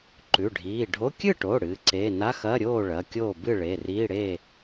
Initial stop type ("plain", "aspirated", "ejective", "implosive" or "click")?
click